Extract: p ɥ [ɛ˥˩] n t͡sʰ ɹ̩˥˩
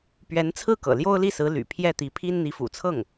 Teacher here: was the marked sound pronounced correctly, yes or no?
no